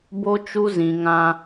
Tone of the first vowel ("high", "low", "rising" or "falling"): high